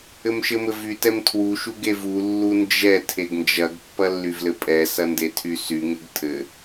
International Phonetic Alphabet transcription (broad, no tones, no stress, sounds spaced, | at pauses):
ɘ m ʃ ɘ m ɘ v y t ɛ m tʰ w u ʃ u ɡ e v u lː u n d͡ʒ ɛ tʰ e ɡ n d͡ʒ ɐ ɡ pː ɐ lː y v l ɘ pʼ ɛ s ɐ n d e tʰ y s y ŋ ɘ ɡ tʰ ɘ